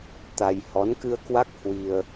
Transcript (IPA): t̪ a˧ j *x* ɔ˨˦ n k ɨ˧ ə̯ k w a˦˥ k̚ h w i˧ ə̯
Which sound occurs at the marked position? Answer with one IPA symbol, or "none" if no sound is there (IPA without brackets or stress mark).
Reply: h